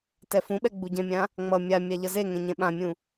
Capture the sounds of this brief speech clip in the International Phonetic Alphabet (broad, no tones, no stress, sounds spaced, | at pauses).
t ɛ f ũ ɓ ɛ ɡ͡b u ɟ ɛ̃ mʲ ã | ŋ͡m ʌ mʲ a mʲ a ʎ ʌ z e ŋ ɛ̃ ɲ ɛ̃ ɓ ã mʲ ũ